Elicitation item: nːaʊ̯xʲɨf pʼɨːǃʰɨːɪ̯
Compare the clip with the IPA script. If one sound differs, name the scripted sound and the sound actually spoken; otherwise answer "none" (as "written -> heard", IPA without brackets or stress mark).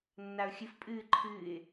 none